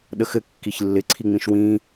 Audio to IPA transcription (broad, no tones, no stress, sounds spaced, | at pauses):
ɗ ə x ɘ kː i ç lː ɪ ǀʰ i ŋ͡m ĩ ʃ w ĩ